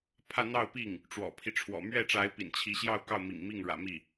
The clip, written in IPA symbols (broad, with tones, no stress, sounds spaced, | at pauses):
pʰ ä˥˧ n̪ ɑ˥˧ ʊ̯ p i˥˩ ŋ | ʈ͡ʂ w ɔ̰˨˩ pʰ i˦ ʈ͡ʂʰ w ɔ̰˨˩ m ɥ ɛ˥˩ ʈ͡ʂ a˧˥ ɪ̯ p ḭ˨˩ n t͡ɕʰ i˧˥ ɕ j ɑ˥˧ ʊ̯ k ɑ˥˩ ʊ̯ m ḭ˨˩ ŋ m i˥˩ ŋ ɻ ä̰˨˩ m i˥˩